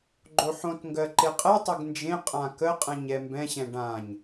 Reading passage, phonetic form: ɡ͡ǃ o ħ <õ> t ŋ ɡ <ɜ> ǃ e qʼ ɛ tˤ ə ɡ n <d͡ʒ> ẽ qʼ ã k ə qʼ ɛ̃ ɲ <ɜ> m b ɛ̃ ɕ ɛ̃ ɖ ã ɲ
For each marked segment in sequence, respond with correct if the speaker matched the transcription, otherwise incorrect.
correct, correct, correct, incorrect: ɛ

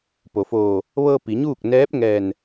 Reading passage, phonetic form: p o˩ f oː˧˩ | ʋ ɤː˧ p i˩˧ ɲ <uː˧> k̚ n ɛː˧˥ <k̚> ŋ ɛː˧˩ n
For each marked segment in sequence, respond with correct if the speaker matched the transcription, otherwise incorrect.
incorrect: uː˥˨, incorrect: p̚

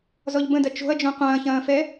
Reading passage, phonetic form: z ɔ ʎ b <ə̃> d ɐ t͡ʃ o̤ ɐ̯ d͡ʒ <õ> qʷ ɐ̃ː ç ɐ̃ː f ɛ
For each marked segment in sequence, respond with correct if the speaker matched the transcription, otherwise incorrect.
correct, correct

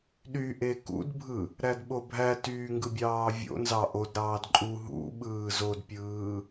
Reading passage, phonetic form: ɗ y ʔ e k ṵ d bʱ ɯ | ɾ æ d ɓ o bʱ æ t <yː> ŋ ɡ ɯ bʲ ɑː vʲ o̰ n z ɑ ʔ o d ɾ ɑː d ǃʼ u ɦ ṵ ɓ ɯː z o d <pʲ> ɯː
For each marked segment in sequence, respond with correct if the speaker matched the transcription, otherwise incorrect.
correct, correct

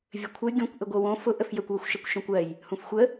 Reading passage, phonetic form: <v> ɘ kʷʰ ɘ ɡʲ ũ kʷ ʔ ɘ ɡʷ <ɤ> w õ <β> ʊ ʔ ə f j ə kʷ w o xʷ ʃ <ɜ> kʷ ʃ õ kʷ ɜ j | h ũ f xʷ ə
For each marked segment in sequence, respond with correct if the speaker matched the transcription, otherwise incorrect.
incorrect: vʲ, correct, incorrect: f, correct

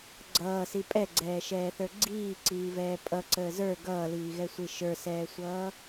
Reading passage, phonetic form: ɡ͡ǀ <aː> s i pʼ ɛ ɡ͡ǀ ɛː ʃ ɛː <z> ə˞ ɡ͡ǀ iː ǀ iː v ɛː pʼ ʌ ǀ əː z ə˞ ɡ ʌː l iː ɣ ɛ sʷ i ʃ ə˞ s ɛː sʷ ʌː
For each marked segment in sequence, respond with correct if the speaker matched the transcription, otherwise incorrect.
incorrect: ʌː, incorrect: θ

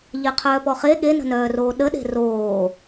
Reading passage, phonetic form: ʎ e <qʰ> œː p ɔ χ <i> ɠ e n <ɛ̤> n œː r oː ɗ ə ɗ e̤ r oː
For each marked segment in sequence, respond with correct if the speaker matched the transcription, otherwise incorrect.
correct, incorrect: e, incorrect: ə̤

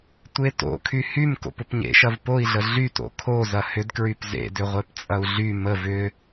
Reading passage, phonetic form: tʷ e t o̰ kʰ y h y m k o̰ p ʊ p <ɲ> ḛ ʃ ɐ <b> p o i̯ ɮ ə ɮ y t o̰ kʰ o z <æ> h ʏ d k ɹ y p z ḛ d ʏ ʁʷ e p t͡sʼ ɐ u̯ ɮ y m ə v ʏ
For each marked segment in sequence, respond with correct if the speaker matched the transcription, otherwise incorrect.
correct, incorrect: v, incorrect: ɐ

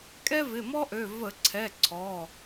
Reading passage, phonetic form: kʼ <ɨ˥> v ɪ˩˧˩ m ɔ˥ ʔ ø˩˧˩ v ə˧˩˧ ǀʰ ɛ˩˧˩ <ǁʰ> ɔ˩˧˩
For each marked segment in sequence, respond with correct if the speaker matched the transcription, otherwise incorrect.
incorrect: ɛ˥, incorrect: ǀʰ

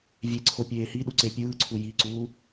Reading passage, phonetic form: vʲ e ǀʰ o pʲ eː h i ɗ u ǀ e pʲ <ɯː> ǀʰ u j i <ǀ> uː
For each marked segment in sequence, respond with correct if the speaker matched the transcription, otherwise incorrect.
correct, correct

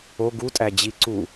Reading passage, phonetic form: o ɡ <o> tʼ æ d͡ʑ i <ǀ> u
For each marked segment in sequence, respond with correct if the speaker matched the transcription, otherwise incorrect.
incorrect: u, correct

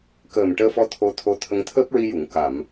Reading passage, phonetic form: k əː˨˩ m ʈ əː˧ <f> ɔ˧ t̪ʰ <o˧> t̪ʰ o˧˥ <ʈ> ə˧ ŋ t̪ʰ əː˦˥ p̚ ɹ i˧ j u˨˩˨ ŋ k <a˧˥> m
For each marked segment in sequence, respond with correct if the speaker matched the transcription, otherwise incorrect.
correct, correct, incorrect: t̪ʰ, incorrect: a˨˩˨

